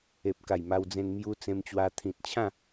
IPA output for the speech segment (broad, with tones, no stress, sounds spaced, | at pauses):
e˨ p̚ k a˨˩ j m a˧ w d͡z ẽ˧ n m j u˧ t͡s ẽ˧ m t͡ɕ w a˧ t̪ʰ ĩ˨ t̚ t͡ɕʰ ã˥˧